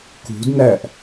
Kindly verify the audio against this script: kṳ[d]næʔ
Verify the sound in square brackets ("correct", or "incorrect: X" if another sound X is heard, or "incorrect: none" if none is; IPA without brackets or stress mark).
correct